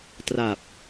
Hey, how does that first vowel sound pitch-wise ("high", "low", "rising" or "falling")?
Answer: low